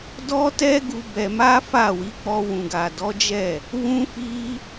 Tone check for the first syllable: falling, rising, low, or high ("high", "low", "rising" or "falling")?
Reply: high